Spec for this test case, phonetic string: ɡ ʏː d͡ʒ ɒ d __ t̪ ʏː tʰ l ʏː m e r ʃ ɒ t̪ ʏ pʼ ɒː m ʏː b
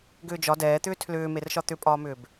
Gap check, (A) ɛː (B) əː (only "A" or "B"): A